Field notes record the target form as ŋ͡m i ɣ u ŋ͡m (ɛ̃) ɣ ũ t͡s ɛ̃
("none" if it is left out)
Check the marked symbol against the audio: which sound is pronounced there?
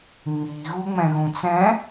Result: ɛ̃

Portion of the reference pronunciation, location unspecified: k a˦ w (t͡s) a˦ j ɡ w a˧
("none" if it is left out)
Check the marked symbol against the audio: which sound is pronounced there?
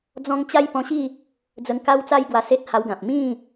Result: t͡s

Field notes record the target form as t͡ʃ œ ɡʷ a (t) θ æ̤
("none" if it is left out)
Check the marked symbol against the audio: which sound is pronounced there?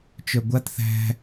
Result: t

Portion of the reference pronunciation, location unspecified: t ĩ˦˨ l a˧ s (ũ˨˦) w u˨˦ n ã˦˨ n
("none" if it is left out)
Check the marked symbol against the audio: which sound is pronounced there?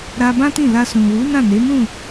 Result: ũ˨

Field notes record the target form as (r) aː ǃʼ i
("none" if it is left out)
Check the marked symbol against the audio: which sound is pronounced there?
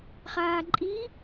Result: χ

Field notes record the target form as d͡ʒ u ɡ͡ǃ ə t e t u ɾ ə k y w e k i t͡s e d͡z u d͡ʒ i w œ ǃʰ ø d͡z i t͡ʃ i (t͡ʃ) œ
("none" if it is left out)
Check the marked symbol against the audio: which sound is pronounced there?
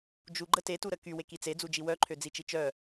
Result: t͡ʃ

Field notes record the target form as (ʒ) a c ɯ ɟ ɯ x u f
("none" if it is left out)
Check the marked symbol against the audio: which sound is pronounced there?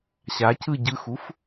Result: ɕ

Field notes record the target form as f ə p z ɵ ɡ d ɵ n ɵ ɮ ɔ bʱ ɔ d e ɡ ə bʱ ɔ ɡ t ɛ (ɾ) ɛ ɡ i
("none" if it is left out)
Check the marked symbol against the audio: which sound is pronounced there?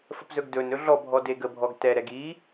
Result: ɾ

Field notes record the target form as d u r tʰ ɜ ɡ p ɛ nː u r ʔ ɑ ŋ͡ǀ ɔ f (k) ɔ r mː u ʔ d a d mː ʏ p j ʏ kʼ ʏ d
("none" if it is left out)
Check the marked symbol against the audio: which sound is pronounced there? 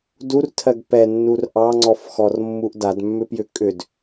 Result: x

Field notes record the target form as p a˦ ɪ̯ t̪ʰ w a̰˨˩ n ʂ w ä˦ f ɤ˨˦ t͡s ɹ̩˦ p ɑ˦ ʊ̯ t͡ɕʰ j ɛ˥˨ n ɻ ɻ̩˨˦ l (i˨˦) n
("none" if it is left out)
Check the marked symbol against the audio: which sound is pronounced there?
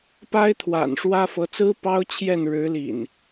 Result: ḭ˨˩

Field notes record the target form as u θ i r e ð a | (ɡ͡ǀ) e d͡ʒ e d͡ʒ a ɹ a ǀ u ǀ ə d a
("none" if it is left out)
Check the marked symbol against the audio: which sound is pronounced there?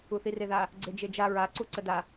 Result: ɡ͡ǀ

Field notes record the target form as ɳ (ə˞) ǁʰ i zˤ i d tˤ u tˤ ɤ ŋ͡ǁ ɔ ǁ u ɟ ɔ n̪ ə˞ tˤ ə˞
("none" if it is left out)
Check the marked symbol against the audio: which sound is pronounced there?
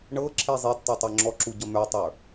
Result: ɤ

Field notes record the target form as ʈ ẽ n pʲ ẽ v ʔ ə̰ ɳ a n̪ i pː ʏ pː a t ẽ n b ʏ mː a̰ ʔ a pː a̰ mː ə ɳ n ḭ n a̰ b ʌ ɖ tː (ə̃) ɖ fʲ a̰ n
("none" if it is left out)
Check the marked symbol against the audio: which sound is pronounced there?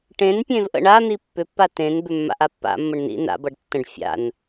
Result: ə̃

